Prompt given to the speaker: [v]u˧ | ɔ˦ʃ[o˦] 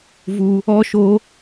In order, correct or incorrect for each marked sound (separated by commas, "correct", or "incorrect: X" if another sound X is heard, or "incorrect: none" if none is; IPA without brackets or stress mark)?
correct, correct